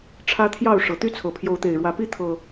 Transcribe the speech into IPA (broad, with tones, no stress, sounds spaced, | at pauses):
ʈ͡ʂʰ ä˦ t̪ʰ j ɑ˥˨ ʊ̯ ʂ ɤ˨˩ t̪ y˥˨ t͡sʰ ɤ˨˩ pʰ j o˨˦ ʊ̯ t̪ e˨˩ ɪ̯ ɻ w ä˨˦ p i˦ t̪ʰ ɤ˨˩